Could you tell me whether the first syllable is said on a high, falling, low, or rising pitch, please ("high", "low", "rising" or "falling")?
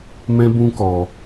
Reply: high